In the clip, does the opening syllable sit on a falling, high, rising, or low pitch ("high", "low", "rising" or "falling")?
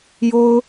high